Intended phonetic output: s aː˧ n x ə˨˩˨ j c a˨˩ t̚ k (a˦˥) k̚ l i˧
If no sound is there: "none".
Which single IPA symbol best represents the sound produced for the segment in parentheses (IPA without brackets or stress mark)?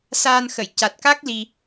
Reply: a˦˥